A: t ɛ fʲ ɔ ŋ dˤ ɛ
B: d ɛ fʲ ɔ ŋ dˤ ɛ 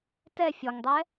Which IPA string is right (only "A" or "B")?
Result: A